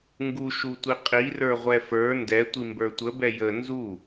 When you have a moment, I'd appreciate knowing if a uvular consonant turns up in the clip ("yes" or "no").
yes